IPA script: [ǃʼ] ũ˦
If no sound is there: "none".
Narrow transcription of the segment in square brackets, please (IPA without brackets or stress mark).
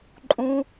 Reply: ǃʼ